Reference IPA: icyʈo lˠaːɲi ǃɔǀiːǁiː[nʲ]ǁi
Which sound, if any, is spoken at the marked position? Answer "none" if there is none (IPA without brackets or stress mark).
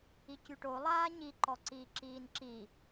n